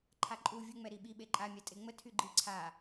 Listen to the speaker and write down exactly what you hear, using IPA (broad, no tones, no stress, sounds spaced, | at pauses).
ǃʰ a ǃʼ u vʲ u ŋ͡m ɛ ɾ i ɓ i ɓ e ǃʼ a mʲ a tʼ e ŋ͡m ə tʰ y ɡ͡ǃ i ǀʰ a